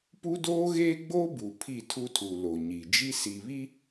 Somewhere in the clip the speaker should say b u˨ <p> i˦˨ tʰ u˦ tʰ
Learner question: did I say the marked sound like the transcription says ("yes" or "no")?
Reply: no